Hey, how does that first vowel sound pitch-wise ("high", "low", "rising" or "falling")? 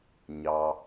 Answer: low